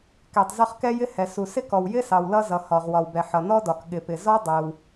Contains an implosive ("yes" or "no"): yes